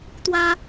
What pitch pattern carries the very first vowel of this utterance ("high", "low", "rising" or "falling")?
high